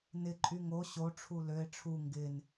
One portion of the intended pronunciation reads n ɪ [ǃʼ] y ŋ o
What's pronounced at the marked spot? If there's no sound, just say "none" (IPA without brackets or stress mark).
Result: ǃʼ